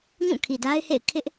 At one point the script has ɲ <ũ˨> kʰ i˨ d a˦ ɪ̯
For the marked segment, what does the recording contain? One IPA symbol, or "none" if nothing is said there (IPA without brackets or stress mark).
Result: ũ˦˨